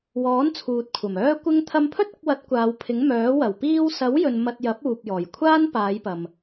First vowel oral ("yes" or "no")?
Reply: yes